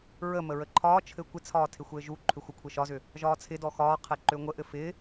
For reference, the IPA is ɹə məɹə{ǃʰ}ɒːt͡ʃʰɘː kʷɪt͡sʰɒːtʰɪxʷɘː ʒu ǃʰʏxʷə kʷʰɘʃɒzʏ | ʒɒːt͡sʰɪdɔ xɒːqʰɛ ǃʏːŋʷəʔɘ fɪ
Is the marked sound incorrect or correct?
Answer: correct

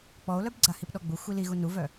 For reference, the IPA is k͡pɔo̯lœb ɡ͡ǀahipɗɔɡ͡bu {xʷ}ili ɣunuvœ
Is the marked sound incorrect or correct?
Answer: correct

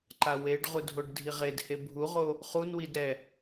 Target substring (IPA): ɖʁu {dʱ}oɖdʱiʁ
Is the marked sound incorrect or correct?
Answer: correct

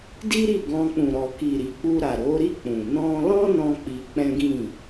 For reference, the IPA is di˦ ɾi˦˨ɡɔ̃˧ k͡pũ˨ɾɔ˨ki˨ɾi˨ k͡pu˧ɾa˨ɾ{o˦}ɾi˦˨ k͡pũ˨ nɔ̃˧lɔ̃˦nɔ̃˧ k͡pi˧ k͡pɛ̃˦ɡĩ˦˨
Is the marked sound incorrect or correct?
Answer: incorrect: o˨˦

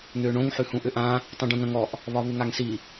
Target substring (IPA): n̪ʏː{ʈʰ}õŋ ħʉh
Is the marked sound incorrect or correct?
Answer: incorrect: ɳ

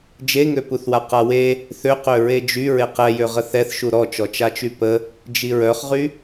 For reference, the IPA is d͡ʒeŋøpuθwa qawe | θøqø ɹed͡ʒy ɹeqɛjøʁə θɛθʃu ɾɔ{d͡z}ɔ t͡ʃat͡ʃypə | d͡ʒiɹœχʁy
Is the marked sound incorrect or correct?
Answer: incorrect: t͡ʃ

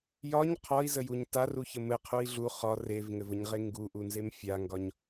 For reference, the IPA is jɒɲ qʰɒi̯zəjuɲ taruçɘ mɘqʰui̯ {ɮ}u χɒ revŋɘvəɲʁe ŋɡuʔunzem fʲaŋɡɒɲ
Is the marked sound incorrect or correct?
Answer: correct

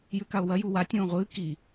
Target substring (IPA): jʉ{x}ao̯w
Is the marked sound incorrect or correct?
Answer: incorrect: k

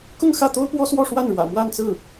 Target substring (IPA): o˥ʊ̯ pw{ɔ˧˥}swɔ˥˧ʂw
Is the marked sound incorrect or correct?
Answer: incorrect: ɔ˥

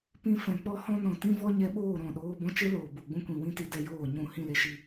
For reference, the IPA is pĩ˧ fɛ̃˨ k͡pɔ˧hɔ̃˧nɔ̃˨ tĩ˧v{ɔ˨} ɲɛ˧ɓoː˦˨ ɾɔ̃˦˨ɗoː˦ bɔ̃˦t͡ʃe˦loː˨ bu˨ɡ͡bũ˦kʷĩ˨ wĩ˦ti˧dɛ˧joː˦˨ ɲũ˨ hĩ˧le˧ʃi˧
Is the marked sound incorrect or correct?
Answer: incorrect: ɔ˧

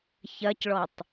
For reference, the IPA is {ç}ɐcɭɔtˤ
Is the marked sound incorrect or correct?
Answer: correct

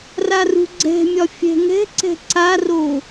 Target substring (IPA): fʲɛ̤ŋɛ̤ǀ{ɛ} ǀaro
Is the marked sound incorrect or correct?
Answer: incorrect: ɛ̤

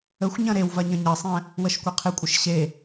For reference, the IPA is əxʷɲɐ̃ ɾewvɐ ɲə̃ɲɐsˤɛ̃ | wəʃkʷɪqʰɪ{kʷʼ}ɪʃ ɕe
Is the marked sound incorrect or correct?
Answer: correct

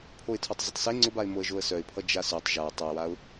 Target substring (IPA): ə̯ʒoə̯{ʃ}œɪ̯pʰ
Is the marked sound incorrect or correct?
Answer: incorrect: s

